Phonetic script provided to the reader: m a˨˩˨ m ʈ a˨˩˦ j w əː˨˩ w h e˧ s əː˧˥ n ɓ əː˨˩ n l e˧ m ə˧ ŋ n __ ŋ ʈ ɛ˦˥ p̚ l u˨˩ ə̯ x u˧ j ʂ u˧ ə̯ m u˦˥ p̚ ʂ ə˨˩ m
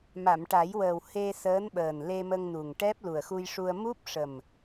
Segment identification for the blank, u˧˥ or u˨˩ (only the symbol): u˨˩